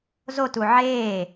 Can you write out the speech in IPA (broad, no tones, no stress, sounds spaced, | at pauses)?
z o t u ʕ eː